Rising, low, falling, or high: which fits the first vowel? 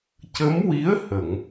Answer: rising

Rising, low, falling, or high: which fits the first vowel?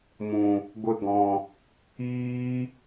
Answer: low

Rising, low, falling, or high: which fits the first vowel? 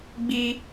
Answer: high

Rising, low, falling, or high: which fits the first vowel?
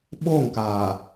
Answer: falling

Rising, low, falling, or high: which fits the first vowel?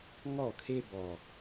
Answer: falling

